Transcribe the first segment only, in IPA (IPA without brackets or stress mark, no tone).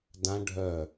d